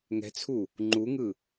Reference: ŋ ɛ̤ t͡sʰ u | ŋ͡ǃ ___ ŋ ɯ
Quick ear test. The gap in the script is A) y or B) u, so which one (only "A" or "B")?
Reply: B